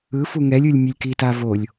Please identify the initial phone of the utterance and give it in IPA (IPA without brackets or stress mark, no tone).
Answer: ɯ